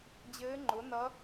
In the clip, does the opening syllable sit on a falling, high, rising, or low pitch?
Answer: rising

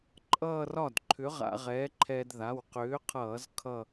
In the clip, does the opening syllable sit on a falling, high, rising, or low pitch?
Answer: falling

